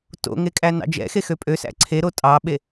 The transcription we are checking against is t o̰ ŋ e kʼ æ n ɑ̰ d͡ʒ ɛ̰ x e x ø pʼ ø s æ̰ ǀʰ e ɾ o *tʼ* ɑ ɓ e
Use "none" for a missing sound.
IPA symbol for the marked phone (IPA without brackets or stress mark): tʼ